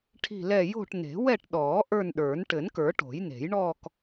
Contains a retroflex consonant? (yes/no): yes